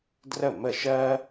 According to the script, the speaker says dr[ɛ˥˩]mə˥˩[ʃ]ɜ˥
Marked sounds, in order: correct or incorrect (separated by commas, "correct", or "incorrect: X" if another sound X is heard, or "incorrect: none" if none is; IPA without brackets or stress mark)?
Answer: incorrect: ə˥˩, correct